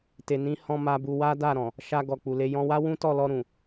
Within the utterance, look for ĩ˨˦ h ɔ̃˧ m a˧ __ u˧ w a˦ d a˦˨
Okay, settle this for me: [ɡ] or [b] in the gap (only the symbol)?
b